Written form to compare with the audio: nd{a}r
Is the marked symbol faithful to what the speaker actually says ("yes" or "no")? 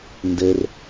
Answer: no